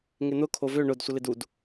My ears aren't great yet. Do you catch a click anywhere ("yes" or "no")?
no